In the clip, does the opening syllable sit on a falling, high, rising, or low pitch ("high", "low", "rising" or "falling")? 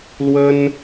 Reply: high